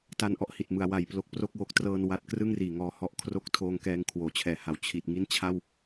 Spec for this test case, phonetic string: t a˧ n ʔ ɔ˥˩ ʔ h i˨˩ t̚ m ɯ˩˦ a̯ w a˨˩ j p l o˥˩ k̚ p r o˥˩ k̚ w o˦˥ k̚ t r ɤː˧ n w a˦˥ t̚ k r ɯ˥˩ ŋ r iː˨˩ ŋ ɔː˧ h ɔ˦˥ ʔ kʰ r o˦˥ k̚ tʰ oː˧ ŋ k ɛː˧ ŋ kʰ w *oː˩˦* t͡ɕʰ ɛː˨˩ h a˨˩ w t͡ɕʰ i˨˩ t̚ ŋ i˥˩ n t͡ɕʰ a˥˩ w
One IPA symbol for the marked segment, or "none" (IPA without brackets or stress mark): oː˩˦